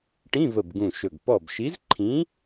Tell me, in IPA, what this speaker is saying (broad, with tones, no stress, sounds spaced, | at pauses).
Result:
ʈ ĩ˧˥˧ v ə˧˩ b ɡ ũ˧˩ ʃ ɵ˧˩ ɡ p ɔ˧˩ b ʃ i˨˥ z ǃʰ ĩ˨˥